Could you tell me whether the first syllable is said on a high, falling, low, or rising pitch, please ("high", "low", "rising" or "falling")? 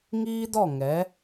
high